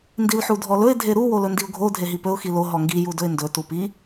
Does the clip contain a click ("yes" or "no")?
no